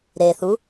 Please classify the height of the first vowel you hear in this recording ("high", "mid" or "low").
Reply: mid